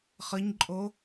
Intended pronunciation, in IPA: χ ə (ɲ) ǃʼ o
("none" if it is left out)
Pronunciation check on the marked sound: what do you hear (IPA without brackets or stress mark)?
ɲ